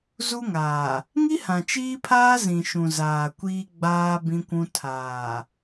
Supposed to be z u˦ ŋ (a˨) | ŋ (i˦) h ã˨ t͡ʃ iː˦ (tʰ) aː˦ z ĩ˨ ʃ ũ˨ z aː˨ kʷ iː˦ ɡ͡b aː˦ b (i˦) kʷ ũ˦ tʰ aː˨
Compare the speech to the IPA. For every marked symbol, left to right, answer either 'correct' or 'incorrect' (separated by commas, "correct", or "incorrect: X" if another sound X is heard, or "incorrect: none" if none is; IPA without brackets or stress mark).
incorrect: aː˨, correct, incorrect: pʰ, incorrect: ĩ˦